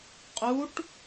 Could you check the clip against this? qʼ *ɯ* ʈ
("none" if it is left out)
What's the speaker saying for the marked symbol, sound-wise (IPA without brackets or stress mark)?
u